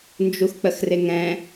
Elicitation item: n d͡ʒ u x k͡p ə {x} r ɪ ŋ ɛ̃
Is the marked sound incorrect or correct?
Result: correct